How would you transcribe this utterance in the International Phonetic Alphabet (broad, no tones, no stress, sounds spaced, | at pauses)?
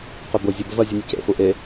q ʏ b ʊ zʲ ə b ə v ɐ zʲ u nʲ ʊ c ḛ χʷ e ʔ e